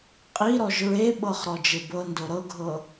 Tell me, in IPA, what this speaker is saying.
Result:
qʼiɾɔʒ ɹeɓɤχ ɾɔd͡ʒebɤndo ɾɤɡʱɤ

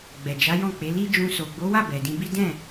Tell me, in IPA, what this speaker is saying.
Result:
ɡ͡bɛ˨d͡ʒa˨˦jɔ̃˦˨k͡pe˨˦ li˦ d͡ʒũ˧ so˨ɡ͡bo˨˦wa˦˨ bɛ˨dĩ˧bi˦ dɛ̃˦˨

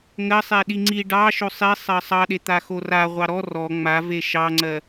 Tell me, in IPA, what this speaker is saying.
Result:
ŋɜ sˤeɗiŋ͡ǀi ɖɑ ʃosˤi sˤɜsˤɑɗe t̪axora ʁʷɑɾɔ rɔ ŋ͡mave ʃɑŋ͡ǀɜ

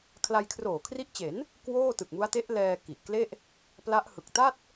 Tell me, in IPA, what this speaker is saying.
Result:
kʰla˧j kʰroː˨˩kʰri˦˥ʔt͡ɕe˩˦n | kwoː˥˩tɯ˨˩k̚mu˦˥a̯ te˦˥ʔ lɛː˧ ki˨˩ʔkle˥˩ʔ | pla˦˥ʔhɯ˨˩k̚ ta˥˩t̚

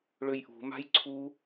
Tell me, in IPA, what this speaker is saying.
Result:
ɭøjʔṳ ma̤jǀʰu

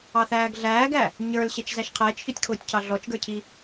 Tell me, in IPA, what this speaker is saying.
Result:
ɑθæːɡɮæːɡæ | ɲə˞lɕɛt͡ʃzæʃ qʰɛːt͡ʃçɔtʲkʰʊːtʲcʰɑ ɮɔt͡ʃɡə˞cʰi

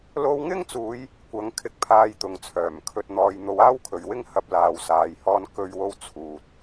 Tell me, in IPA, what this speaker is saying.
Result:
lo˧wŋɪ˥ŋt͡suː˨˧j | kʷɐ˨˥ŋkʰɪ˧k̚pʰaː˧j t̪ʊ˨ŋt͡sʰœː˨˩mkʰɵ˧t̚n̪ɔː˧j n̪o˨˧waː˥wkʰɵ˨ɥwɪ˥ŋ hɐ˧p̚ laː˧wsaː˧jhɔː˥n kɵ˥ɥwo˥w t͡sʰuː˨t̚

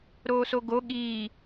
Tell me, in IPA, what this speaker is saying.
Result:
ɾoːsoɡo ɠiː

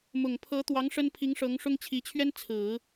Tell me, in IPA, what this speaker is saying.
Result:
mʊ˨˩ŋ pʰɤ˧˥t̪wɑ˧˥ŋ ʂə˥n pʰi˧˥ŋ ʂɤ˧˥ŋʂʊ˥ŋ t͡ɕʰi˧˥t͡ɕʰɥɛ˥n t͡sʰɹ̩˨˩˦

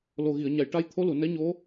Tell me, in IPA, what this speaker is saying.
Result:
lo˨˩ɣi˨˩˨ə̯ɲa˨˩˨j ʈa˧˥jt̪ʰo˧˥lu˨˩˨ nɛ˧˥ɲo˧˥

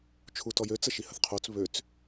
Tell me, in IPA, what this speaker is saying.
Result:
t͡ʃʰutɔjø t͡səʃihəθqʰot͡s βøt͡s

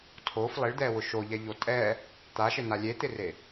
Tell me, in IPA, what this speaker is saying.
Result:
tʰof lˠɪɭd̪ɛwʊ ʃoʎɛʎo tʼɛ | t̪aʃɪna lʲet̪ɪre

